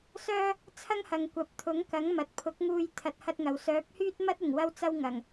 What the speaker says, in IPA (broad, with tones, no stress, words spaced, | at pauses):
sœː˥ | t͡sʰɐ˥ŋhɐ˨ŋ kʷɐ˨p̚t̪ʰʊ˨˥ŋkɐ˨˥ŋ mɐ˨t̚pʰʊ˨˥k̚ŋuː˧j t̪ʰɐ˧t̚hɐ˥t̚ŋɐ˨w sœː˨˥p̚hyː˥t̚mɐ˥t̚ ɪ˨˩ŋwɐ˧wt͡sɐ˧w ŋɐ˨˩ŋ